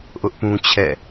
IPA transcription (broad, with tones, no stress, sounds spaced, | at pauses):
ʔ ʊ˦ ʔ p ũ˦ t͡ɕʰ ɛ̰˦˨